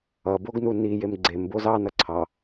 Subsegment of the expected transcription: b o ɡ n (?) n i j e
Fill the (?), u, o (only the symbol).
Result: u